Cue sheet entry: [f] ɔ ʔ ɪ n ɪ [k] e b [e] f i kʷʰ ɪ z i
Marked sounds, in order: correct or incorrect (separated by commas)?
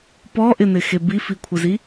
incorrect, incorrect, incorrect